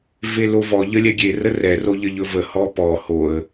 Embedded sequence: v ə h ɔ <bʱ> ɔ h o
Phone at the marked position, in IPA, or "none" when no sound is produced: p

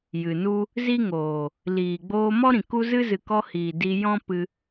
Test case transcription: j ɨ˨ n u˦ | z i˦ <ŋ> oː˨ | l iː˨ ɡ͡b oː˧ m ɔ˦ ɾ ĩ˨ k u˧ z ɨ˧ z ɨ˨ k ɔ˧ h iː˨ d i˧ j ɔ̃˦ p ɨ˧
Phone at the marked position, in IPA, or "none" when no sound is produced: ŋ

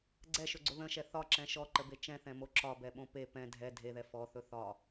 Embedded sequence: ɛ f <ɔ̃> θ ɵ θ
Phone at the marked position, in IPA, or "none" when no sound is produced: ɔ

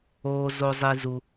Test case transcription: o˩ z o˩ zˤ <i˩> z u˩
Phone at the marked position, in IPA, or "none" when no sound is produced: i˩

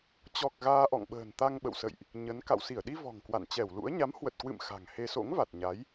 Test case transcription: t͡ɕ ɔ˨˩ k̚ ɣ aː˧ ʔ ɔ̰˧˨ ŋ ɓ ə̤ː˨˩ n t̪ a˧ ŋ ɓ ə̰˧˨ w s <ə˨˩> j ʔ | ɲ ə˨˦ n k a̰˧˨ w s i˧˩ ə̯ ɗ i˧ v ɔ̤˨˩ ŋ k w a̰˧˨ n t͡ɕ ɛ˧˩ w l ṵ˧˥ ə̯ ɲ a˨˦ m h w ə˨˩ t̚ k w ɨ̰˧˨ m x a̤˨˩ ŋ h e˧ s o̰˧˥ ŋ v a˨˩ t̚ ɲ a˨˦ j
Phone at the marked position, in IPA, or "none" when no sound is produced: ə̰˧˨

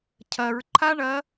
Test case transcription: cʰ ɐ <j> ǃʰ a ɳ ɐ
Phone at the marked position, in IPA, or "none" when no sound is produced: ɹ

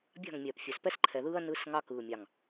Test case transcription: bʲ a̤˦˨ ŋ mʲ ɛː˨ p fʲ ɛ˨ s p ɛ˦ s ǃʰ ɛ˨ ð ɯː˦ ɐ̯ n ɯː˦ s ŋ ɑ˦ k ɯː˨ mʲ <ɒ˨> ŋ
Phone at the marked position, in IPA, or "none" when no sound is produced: ɑ˨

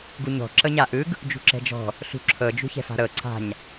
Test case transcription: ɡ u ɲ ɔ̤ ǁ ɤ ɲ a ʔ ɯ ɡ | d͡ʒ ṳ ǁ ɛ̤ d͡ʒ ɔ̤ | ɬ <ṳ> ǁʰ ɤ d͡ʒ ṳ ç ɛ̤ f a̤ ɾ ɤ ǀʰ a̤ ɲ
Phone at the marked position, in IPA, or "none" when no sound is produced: ṳ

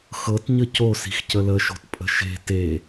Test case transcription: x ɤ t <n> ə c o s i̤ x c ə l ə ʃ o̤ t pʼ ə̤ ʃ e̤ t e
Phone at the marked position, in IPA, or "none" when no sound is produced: ɲ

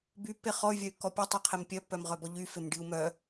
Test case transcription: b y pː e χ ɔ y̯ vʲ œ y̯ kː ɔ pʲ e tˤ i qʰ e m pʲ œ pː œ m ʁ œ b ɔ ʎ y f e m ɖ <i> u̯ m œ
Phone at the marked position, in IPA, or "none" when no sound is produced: i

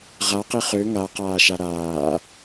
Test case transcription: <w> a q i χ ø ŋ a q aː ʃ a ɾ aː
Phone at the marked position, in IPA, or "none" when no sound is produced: ʁ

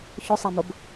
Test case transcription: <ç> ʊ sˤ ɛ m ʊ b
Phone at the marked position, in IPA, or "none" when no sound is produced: ç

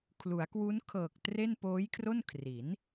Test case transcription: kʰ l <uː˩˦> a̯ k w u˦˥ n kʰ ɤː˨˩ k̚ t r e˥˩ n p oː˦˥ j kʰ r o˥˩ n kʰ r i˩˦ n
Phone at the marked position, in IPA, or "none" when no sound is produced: u˩˦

